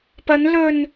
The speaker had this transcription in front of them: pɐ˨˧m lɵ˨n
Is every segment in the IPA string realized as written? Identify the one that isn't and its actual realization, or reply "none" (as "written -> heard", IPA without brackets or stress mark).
m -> n